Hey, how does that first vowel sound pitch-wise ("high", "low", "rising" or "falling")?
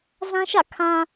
high